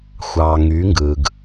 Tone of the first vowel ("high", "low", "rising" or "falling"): low